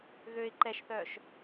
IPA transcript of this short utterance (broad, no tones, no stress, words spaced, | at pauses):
ɣøɪ̯ ǃɛʃθœːʃ